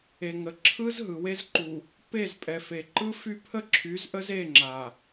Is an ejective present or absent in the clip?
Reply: present